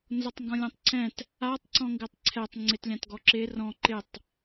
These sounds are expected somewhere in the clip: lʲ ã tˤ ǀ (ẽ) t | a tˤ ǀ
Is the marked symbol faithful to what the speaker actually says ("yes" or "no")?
no